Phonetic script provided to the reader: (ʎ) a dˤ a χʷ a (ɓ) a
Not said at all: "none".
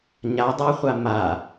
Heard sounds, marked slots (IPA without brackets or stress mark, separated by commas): ɲ, m